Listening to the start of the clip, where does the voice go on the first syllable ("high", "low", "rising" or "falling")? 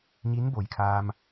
rising